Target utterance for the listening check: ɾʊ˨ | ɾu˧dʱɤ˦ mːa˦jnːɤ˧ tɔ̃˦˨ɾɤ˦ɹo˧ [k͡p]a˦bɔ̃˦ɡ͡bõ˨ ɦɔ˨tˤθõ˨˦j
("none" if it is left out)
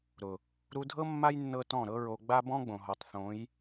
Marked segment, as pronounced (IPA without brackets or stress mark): ɡ͡b